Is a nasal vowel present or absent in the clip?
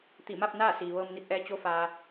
absent